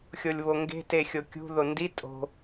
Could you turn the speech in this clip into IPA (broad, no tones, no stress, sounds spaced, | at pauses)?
xʲ o lʲ β o ŋ ɡ e̤ t e xʲ o kʲ ṳ ð o n d i tʼ o̤